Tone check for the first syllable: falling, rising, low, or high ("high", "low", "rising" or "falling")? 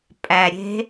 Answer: low